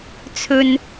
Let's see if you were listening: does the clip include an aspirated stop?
yes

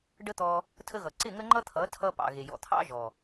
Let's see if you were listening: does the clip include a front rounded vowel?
no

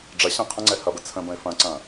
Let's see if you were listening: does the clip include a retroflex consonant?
yes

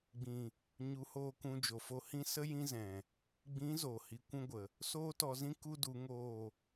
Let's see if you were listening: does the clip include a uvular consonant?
no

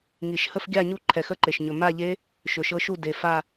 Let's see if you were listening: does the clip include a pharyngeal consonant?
no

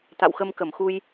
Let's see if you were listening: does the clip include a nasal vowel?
no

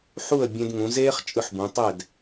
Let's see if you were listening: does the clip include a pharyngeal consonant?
yes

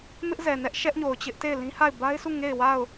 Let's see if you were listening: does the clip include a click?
no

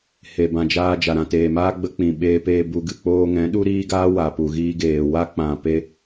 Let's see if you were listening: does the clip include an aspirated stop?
no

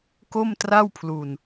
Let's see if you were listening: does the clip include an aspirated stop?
yes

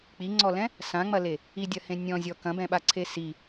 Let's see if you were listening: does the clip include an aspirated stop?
yes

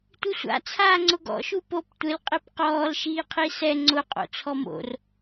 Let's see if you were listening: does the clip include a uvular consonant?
yes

